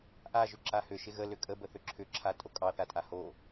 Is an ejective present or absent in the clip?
present